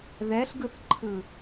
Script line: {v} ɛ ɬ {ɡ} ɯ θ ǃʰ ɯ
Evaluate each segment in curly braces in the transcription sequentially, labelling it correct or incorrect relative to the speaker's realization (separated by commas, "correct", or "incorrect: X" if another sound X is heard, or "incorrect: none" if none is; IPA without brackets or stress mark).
incorrect: ð, correct